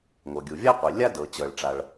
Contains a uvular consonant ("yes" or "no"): yes